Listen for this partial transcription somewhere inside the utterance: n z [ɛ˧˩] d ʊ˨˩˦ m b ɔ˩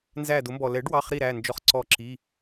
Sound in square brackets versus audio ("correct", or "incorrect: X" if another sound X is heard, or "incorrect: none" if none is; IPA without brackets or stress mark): incorrect: æ˧˩